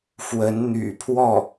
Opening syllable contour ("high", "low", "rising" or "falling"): rising